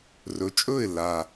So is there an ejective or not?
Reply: yes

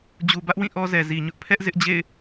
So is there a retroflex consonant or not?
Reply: no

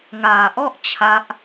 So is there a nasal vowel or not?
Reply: no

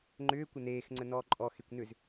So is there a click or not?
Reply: yes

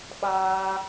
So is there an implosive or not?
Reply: yes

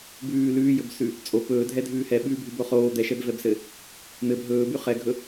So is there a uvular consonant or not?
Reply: yes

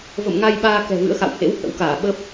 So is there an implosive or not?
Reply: yes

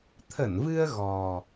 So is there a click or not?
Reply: no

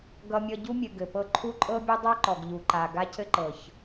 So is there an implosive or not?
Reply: no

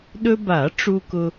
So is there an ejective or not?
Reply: no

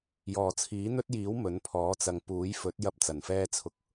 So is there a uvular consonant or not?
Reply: no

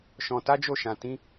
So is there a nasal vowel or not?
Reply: yes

